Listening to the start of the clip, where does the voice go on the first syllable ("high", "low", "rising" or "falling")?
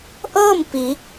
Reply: falling